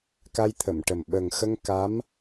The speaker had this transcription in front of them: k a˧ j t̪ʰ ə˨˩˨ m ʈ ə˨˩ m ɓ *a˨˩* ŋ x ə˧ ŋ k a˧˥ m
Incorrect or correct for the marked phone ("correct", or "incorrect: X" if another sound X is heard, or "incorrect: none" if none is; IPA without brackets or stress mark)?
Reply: incorrect: ə˨˩